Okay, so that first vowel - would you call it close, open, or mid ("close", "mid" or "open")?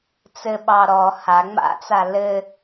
mid